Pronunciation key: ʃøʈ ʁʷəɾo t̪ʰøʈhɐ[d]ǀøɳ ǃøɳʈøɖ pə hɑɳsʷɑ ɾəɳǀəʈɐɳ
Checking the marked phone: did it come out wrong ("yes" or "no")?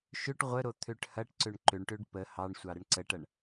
yes